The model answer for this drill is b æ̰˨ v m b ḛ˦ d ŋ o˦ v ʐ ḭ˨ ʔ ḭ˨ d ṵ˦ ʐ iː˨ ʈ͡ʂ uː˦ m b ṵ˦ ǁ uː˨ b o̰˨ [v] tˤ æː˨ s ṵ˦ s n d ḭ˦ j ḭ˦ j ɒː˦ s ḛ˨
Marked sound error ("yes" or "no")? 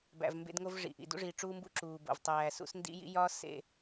no